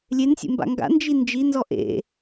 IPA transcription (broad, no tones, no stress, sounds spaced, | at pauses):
lʲ e n sʲ ḛ m b a̰ ŋ ɡ a̰ n d͡ʒ i n d͡ʒ i n z ɔ ʔ ḛ